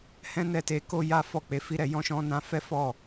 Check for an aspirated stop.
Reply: absent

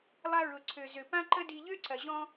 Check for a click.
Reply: present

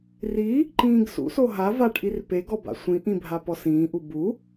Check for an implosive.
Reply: absent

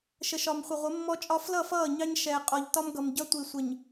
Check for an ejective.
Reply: present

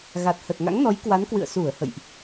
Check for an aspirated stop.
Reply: absent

